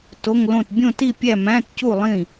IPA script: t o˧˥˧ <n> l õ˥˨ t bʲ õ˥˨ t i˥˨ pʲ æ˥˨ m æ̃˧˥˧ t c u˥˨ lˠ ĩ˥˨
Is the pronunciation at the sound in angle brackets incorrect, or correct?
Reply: incorrect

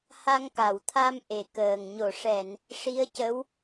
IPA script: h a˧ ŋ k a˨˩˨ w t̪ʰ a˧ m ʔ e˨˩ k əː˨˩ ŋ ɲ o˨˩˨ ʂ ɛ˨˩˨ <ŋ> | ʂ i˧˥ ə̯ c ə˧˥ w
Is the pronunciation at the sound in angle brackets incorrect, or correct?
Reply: incorrect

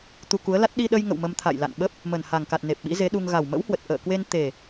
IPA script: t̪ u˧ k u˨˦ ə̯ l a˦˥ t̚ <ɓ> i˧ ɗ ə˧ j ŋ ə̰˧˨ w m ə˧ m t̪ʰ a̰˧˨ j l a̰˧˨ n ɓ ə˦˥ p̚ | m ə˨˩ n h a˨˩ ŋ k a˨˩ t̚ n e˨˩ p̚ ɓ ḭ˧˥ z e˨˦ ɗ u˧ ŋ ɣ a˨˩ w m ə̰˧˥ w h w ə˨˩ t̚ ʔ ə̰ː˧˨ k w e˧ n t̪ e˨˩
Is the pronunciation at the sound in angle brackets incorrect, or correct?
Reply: incorrect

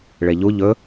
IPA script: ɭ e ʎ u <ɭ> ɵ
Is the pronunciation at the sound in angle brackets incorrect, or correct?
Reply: incorrect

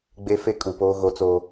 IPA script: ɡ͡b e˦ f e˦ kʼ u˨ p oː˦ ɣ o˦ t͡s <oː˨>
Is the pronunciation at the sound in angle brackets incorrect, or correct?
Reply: incorrect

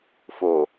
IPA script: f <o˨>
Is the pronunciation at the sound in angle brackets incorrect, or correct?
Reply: correct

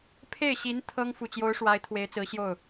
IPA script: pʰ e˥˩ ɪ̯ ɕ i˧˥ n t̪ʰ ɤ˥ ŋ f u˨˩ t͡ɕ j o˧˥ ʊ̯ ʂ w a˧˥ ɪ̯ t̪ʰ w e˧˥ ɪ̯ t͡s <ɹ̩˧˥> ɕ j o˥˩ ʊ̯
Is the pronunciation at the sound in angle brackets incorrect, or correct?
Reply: correct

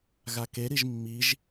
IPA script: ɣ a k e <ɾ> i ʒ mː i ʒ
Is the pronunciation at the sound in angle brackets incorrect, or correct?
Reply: correct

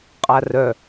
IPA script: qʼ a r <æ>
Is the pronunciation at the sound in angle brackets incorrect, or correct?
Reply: incorrect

